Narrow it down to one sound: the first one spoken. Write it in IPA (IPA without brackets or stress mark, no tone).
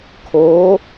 kʰ